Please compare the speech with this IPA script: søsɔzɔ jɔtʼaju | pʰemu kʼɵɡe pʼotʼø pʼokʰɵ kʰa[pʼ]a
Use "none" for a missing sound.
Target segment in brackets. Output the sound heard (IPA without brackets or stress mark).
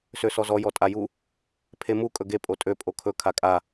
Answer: kʼ